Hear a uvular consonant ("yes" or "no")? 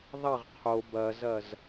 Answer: yes